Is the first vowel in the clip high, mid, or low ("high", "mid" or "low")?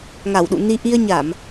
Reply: low